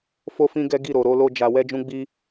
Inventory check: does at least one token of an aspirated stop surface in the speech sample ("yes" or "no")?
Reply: no